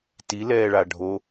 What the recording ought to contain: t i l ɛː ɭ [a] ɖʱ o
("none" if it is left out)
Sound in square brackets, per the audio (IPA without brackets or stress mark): a